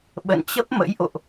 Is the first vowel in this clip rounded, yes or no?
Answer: no